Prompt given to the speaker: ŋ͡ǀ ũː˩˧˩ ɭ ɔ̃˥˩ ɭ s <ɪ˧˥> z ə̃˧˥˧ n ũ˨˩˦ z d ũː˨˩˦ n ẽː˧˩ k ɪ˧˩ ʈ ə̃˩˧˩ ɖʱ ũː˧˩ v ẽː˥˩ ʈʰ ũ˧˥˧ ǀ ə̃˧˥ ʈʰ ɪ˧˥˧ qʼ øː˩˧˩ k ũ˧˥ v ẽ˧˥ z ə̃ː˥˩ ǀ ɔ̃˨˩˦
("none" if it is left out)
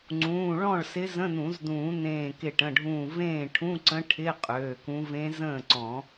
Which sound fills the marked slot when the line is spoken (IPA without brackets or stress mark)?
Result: ɪ˧˥